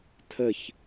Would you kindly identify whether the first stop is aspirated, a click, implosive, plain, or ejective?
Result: aspirated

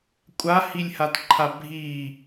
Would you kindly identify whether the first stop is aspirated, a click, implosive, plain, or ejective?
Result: ejective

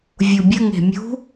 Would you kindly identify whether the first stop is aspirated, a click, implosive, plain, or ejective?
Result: plain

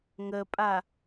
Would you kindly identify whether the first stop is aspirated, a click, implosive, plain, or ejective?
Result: ejective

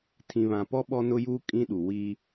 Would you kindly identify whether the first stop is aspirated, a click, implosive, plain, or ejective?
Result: aspirated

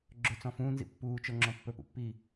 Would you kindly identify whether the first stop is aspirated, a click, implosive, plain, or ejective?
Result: click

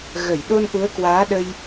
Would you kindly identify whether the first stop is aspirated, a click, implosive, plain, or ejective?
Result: implosive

